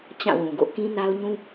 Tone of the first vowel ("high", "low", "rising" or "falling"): falling